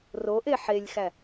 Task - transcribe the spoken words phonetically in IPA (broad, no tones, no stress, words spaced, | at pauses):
roʔe ħelʲxæ